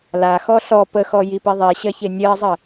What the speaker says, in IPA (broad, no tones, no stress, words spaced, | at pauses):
laxɔ ɬɔ pəxɔ jipiðˤiɕɜ çenʲɜzˤə